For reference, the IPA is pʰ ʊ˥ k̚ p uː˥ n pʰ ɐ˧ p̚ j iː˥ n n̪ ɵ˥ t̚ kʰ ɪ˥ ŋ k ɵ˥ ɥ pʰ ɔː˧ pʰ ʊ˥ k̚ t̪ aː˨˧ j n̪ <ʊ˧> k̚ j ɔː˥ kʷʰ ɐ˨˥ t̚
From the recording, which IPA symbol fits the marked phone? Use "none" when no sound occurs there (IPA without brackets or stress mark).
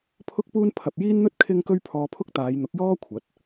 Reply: ʊ˨˥